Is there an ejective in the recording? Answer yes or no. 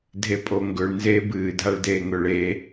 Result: yes